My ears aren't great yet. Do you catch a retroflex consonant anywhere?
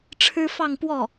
yes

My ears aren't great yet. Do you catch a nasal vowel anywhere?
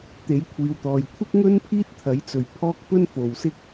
no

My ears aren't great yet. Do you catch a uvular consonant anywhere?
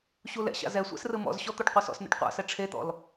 yes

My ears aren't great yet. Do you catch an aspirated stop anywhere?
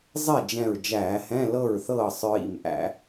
no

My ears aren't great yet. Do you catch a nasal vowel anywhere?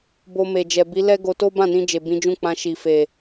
yes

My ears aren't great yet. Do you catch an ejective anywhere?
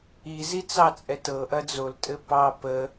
yes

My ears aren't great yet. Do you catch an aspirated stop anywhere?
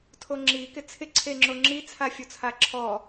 yes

